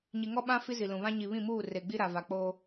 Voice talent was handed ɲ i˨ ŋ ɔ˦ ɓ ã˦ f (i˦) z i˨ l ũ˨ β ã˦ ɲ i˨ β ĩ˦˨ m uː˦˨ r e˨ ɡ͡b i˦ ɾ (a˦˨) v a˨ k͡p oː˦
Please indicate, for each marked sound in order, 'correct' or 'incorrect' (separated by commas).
correct, incorrect